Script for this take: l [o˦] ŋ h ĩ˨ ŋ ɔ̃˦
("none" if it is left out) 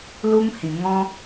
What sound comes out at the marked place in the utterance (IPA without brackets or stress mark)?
u˦